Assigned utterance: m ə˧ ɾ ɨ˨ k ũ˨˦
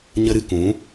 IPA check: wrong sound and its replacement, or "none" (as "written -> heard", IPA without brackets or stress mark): m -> ɲ